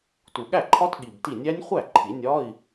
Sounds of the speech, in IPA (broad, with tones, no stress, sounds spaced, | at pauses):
t u˨˩ ɠ æ˥˩ ǃʰ ɒ˦˥ t ɠ i˨˩ b t i˥˩ nʲ æ˦˥ nʲ χʷ æ˥˩ ǃʰ i˨˩˦ nʲ ɒ˧˥˧ i̯